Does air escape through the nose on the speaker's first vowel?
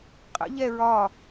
no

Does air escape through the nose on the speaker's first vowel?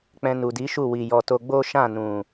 yes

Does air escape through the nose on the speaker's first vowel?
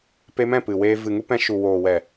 no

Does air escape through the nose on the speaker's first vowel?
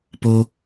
no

